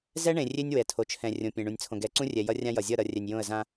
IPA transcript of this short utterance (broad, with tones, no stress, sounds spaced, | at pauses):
z ɛ˦ ɳ ẽ˨ rʲ e˦ nʲ w ɛ˨ tʰ o˨ t͡ʃʰ ɛ̃˨ rʲ õ˨ pʲ ẽ˨ ɳ ũ˨ nʲ t͡sʰ õ˨ ɡ ɛ˨ ǀ ũ˦ rʲ ɛ˨ j ʌ˦ rʲ ã˦ j ʌ˨ zʲ ʌ˦˨ ɾ ʌ˨ rʲ ɛ˨ nʲ j õ˦˨ ə̯ z ã˦